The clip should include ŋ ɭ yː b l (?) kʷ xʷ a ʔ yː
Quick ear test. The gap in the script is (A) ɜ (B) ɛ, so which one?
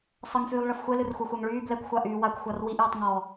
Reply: B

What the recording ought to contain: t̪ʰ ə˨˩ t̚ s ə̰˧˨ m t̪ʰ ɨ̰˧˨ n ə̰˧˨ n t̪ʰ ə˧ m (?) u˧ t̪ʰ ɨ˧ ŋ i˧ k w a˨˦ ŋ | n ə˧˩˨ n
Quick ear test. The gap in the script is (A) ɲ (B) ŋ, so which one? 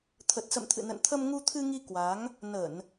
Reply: B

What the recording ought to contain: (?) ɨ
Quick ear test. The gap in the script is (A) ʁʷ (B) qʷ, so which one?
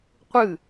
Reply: B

